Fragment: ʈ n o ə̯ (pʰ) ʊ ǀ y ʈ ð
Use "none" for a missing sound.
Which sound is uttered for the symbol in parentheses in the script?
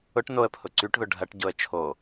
pʰ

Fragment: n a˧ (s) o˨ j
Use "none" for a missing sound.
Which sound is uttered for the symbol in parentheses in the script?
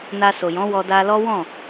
s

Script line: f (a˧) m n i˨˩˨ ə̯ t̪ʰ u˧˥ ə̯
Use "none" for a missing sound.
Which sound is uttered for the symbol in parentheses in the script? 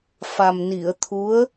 a˨˩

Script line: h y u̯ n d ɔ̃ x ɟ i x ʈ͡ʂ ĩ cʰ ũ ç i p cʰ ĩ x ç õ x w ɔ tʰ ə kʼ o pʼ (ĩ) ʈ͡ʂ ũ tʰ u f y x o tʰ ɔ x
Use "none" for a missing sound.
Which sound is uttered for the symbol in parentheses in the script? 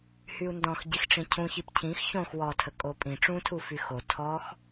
ĩ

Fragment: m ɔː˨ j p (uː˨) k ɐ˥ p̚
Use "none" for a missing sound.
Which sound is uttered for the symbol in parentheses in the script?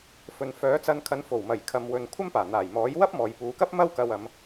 uː˨˧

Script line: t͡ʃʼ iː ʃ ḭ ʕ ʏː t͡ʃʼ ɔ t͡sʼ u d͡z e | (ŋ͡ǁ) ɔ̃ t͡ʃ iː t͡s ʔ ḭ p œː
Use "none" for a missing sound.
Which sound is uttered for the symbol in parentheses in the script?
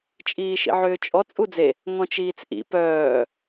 ŋ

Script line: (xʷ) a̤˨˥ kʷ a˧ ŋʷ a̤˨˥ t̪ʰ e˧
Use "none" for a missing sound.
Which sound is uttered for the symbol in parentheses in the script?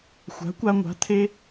xʷ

